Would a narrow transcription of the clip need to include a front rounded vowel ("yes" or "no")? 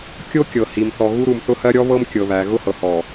no